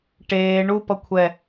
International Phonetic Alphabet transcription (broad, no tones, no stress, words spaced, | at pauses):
ʈeː ɳupʌ kʷʰɛ